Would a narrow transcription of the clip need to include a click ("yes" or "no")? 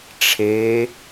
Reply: no